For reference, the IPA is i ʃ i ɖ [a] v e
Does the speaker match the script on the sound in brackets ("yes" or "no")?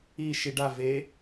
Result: yes